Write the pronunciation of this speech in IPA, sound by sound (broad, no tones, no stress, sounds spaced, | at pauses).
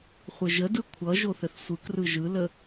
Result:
χʷ ɘ ʒ ə d ɯ kʷʰ ʌ ʒ o θ ɘ θ sʷ ɯ k r ɯ ʒ ɯ l ə